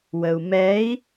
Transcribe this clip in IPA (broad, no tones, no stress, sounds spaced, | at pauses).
w ə u̯ m ɛ i̯